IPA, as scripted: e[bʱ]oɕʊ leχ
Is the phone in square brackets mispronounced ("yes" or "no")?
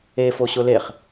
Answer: yes